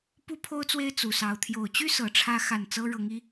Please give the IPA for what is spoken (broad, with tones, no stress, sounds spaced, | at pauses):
p u˥ pʰ o˥ ʊ̯ t͡s w e˥ ɪ̯ t͡s u˨˩ s ɑ˧˥ ʊ̯ t̪ʰ j o˨˩ ʊ̯ t͡ɕ y˥ s ɤ˧˥ ʈ͡ʂʰ ä˥ x a˥˩ n t͡s ɤ˥ ɻ ɤ˧˥ ŋ i˧˥